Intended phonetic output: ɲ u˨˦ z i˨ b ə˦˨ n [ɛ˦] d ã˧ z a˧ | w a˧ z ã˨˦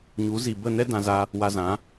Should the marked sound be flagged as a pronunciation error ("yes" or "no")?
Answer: no